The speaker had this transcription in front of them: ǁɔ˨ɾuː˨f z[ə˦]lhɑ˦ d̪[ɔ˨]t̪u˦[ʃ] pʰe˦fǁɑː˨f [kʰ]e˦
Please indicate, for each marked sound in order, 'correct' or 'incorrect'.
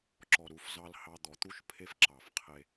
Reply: incorrect: ɑ˦, correct, correct, incorrect: qʰ

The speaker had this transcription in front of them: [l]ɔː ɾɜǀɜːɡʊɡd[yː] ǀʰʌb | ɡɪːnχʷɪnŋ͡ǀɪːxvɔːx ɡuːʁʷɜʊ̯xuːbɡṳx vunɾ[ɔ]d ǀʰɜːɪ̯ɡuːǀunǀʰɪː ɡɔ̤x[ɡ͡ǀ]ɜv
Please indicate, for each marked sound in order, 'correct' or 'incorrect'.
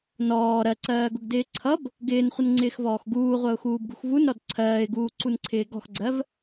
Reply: incorrect: n, incorrect: ɪː, correct, correct

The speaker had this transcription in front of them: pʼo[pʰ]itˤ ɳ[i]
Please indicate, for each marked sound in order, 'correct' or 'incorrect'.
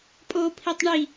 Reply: correct, correct

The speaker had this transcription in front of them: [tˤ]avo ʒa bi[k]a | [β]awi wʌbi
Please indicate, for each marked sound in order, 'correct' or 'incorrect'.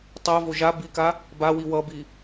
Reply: correct, correct, incorrect: b

